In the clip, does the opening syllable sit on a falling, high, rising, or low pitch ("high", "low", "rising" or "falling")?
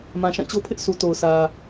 low